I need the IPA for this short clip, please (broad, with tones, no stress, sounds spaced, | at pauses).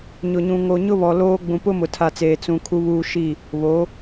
ɲ ʊ˨ ɲ ũ˨ ŋ o˨ ɲ ʊ˦ β ɔ˨ l oː˦ ɡ͡b ũ˨ p ʊ˦ m ʊ˨ tʰ a˨ t͡s eː˨ t͡s ũ˨ kʰ u˦ β uː˦ ʃ i˦˨ | β o˨˦